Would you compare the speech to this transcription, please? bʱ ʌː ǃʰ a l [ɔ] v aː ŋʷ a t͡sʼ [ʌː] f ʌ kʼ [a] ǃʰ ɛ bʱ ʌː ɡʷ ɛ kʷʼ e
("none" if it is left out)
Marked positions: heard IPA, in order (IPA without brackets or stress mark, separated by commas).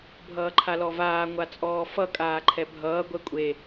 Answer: ɔ, ɔː, aː